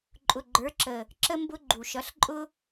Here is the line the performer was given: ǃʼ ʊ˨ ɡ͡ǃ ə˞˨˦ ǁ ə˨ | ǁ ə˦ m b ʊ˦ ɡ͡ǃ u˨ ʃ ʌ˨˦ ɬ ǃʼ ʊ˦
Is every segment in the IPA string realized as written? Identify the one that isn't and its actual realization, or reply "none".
none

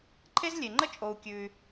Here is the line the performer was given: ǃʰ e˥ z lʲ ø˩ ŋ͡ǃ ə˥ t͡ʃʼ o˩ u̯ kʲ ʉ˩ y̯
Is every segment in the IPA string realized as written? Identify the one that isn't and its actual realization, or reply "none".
ø˩ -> e˩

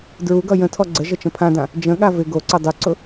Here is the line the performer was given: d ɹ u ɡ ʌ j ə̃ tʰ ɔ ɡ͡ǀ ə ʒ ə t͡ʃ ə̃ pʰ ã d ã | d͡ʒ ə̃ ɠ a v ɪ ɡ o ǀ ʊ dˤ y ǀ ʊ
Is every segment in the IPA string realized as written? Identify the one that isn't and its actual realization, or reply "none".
none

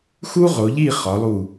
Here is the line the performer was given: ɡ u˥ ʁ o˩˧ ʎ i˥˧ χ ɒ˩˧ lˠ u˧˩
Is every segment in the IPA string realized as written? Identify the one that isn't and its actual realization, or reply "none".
ɡ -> x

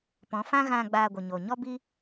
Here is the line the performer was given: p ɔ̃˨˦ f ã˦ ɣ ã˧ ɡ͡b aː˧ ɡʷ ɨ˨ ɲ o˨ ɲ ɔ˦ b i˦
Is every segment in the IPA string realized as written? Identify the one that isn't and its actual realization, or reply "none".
none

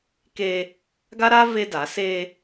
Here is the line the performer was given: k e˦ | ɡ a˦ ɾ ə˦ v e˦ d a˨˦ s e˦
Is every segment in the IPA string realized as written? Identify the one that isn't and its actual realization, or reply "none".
ə˦ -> a˦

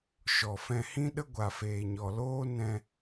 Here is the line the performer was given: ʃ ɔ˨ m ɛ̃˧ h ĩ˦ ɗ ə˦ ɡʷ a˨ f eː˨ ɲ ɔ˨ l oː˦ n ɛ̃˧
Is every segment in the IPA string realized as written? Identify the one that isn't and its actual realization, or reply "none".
m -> f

